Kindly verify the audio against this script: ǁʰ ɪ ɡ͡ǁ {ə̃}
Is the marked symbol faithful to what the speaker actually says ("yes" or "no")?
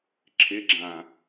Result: no